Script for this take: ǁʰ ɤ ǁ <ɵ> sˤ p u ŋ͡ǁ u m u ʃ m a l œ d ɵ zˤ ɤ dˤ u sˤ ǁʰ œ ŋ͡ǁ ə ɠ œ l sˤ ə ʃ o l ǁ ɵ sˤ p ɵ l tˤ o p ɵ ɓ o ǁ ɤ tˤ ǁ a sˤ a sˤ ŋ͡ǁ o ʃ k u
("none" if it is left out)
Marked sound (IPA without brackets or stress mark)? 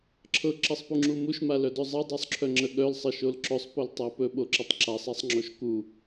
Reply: ɤ